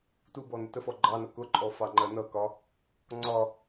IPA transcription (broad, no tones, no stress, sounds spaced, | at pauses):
t u b ɔ n ə t ə f ɔ ɡ͡ǃ ɑ n ʌ k ʊ ǃʼ ɔ f ɑ ŋ͡ǃ ɜ n ʌ k ɒ | ŋ͡ǀ ɒ